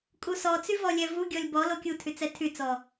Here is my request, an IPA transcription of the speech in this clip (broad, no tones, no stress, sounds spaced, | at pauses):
kʼ u s ɔ t͡s y v ɔ lʲ ɛ v u ɡʲ ɔ lʲ b ɔ l o kʲ u tʰ y t͡s ɛ tʰ y t͡s ɔ